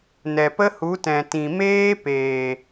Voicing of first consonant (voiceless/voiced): voiced